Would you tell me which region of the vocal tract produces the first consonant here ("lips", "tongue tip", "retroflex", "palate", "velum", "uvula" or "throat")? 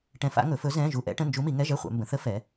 retroflex